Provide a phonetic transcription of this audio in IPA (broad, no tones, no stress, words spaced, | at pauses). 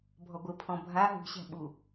bʱɔɡʷɘpʰɔ̃ bʱa ɦṳɕæ̤ɓu